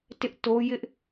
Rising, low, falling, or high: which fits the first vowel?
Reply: high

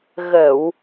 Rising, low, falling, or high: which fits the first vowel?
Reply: low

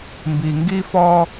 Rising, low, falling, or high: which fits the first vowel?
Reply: low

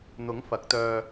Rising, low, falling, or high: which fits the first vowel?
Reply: rising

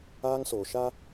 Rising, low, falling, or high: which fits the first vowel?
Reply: high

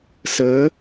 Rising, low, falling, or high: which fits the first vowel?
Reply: rising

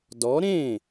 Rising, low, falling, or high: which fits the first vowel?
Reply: rising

